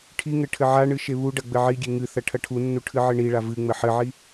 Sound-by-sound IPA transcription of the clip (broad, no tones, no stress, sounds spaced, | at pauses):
ʈʰ i ŋ ɘ ʈʰ ɘ ʕ a ɳ ɨ ʃ e β u ɖ ɐ ɡ͡b ɘ ʕ i ɡʲ e ŋ ɨ θ ɐ ʈʰ ɐ ʈʰ u nː u ʈʰ ɨ ʕ ɘ ɳ i ɭ a v ɨ ŋ͡m ɘ ħ ɘ ʕ i